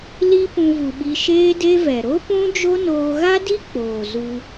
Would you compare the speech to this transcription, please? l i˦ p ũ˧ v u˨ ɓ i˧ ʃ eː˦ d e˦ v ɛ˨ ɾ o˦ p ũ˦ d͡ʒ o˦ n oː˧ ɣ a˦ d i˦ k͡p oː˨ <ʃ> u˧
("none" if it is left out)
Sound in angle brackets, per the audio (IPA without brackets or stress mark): z